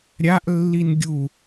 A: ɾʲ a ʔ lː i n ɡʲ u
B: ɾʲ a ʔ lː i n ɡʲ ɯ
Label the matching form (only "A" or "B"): A